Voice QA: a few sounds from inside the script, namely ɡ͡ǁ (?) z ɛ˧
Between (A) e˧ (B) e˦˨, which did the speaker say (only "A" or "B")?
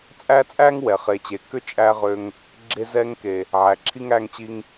A